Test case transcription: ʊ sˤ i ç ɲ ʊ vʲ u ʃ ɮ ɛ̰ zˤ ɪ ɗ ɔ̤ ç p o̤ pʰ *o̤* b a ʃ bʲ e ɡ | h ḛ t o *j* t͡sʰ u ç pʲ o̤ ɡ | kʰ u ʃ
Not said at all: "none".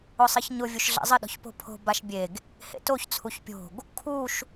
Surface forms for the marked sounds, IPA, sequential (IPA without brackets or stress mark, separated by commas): o̤, ç